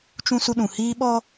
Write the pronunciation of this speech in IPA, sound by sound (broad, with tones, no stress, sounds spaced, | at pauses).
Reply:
t͡ʃ ũ˦ s u˦ ɗ ũ˨ h iː˦ ɓ ɔ˦